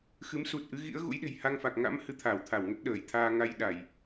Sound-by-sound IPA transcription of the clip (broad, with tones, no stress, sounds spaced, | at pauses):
x ɨ˨˦ m s u˨˩ t̚ ʔ ɨ˨˦ ɣ ḭ˧˥ ə̯ ɣ ṵ˧˥ j ɗ e̤˨˩ j h a˧ ŋ f a˨˩ k̚ ŋ a̰˧˥ m h ɨ˧ t̪ʰ aː˧˩ w t̪ʰ a˧˩ w ŋ ə˦˥ t̚ ɗ əː˧˩ j t̪ʰ aː˧ ŋ a˧ j ɗ a˧˩˨ j